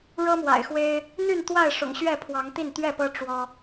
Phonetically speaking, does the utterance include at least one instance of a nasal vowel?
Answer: no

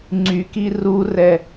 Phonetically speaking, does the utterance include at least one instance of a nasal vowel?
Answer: no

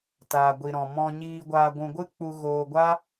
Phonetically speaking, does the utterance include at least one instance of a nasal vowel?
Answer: yes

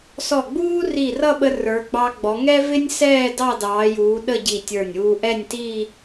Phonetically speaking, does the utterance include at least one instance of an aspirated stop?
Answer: no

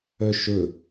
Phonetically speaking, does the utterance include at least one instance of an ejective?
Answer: no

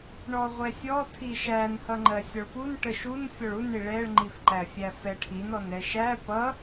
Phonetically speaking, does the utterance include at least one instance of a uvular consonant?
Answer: yes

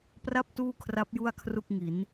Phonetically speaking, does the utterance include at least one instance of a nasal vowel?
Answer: no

